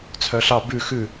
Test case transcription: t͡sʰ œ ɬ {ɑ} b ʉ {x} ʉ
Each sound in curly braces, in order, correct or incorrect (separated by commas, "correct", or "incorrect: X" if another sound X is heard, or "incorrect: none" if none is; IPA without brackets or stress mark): correct, correct